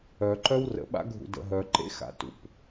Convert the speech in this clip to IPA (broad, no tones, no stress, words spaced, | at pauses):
œǃœw rə̰ɓa̰ ɡʱṵdə̰ɦœǃḛ xa̰tṵp